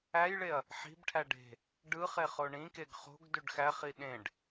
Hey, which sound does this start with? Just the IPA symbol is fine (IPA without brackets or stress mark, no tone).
æ